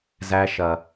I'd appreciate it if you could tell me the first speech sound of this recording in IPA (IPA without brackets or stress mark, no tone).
z